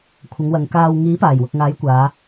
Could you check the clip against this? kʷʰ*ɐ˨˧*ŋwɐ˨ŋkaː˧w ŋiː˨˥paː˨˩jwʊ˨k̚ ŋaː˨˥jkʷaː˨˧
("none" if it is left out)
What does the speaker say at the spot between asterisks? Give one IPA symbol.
ɐ˨˧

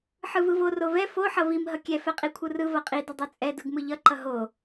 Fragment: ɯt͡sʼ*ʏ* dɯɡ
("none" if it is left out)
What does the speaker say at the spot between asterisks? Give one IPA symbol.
ɛ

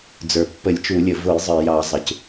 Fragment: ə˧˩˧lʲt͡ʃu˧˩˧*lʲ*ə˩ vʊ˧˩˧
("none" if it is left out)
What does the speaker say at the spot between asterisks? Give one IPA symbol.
lʲ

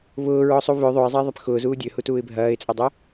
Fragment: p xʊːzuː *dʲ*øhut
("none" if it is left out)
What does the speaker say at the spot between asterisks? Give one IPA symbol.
dʲ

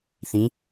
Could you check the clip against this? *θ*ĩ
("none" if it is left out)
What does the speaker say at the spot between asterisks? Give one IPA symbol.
θ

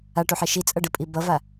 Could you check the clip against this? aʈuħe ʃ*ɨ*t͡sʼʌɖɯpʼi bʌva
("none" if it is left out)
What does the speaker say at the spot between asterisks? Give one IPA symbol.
i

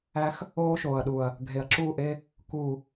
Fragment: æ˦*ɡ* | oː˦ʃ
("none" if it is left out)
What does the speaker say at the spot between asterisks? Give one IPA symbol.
x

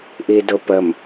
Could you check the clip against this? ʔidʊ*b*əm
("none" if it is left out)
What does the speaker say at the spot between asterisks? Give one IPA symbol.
p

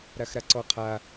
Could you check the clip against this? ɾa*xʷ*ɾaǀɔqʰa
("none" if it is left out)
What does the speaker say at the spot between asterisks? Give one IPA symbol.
x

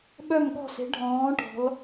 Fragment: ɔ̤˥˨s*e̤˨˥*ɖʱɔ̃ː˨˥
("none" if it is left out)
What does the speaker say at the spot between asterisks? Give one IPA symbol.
e̤˨˥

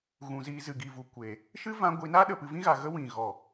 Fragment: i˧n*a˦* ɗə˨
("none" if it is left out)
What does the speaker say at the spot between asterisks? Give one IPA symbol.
a˦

